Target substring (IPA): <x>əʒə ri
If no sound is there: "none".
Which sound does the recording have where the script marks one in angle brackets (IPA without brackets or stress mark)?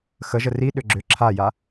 x